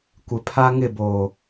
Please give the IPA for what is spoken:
kʷɪ˨pʰa˦ ŋɪ˦˨boː˨

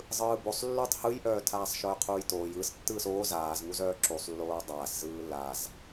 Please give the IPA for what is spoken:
zˤɯːbosˤlːutˤ hɯjʔœːtʰaːsˤʃœː qʰuːjtoːj ɯs tːɯːsoː zaːzŋuzœː ǁusˤlːoː dˤaːszɯː laz

